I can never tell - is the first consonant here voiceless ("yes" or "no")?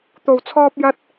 yes